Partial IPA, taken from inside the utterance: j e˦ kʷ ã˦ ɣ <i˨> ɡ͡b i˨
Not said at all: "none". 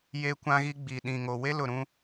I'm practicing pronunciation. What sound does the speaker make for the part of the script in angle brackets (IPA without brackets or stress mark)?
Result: i˦